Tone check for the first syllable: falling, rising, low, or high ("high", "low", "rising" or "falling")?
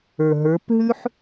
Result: low